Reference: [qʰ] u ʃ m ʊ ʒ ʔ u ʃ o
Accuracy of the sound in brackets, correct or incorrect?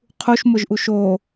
correct